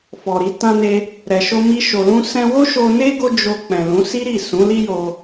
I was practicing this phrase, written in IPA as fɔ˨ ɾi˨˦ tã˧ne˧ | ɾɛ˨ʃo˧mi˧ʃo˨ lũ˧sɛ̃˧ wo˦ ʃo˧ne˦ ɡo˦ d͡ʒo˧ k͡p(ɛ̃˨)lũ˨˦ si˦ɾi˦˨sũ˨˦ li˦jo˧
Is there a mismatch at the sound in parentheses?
no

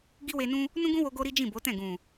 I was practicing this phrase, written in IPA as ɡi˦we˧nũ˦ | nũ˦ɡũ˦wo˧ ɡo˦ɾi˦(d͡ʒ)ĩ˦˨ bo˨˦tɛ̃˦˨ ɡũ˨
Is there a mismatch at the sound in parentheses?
no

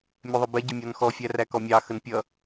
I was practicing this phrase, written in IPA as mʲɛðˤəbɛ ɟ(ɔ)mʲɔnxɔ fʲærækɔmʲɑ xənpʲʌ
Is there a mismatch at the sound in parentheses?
yes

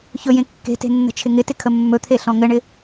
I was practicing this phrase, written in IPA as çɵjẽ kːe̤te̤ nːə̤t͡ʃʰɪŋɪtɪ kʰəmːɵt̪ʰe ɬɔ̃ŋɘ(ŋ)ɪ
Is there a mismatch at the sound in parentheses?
yes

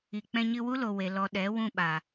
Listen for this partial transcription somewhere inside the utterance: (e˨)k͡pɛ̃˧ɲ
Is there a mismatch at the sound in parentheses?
yes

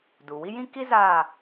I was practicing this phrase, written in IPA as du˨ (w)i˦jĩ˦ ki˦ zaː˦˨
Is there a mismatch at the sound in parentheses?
no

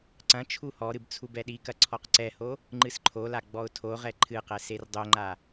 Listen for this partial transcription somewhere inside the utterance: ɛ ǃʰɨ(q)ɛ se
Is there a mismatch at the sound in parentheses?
no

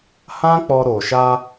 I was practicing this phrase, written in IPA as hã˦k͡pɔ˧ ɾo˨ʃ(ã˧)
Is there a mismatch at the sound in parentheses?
yes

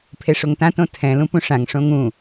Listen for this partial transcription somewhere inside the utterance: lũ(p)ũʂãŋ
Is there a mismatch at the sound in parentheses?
no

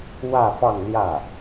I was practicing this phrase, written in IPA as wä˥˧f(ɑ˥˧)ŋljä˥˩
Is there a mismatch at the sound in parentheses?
no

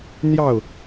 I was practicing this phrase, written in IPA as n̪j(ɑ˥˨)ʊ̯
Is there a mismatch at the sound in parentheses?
no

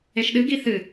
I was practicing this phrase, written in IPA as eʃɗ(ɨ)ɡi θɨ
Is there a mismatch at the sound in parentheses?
no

